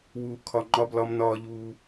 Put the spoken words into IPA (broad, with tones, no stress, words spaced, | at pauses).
wuː˨kʰɒ˨ ŋ͡ǃɒ˧blɒ˧m nɒː˦ʎuː˦